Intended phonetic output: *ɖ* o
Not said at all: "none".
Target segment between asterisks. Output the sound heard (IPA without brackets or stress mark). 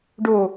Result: ɖ